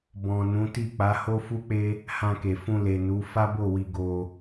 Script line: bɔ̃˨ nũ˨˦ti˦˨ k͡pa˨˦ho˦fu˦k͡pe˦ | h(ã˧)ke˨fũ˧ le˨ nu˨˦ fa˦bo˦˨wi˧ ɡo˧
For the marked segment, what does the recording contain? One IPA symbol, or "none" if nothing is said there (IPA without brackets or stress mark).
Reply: ã˧